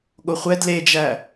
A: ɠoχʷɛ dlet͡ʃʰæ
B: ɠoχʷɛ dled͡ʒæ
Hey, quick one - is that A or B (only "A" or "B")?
B